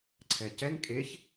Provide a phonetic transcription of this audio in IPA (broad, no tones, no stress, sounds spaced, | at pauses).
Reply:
ǀʰ ɛ c ɛ n kʼ e ç